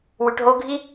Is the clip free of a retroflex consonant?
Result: no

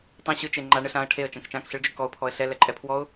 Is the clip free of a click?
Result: no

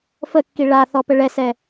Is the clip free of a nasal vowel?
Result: yes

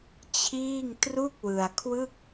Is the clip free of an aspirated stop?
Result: no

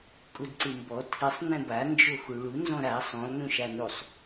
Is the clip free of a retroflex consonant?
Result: no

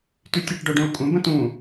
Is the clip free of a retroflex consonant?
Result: no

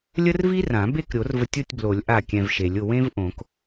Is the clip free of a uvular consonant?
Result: yes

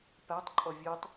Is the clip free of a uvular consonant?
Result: yes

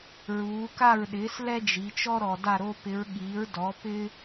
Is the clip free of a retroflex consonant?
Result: yes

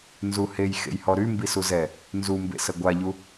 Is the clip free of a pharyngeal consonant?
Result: yes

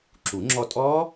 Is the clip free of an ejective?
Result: no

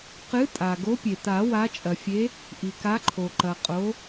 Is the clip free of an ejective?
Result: no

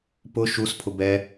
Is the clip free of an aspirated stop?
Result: no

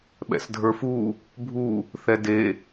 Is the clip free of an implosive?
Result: no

